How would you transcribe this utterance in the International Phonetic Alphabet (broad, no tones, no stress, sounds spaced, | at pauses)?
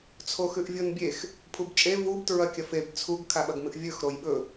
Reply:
t͡sʰ o x ʉ ʔ vʲ o n bʲ e x | pʰ u b t͡ʃʼ e v u b t ɹ ɐ kʲ ɐ f e b t͡sʰ u ɡ kʰ a ɓ ɐ ɡ m ɨ ʔ vʲ ɵ x ɾ o j ɓ ɵ